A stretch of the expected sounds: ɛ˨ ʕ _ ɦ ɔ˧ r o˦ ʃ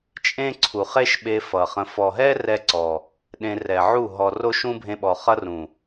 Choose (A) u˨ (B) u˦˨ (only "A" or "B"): B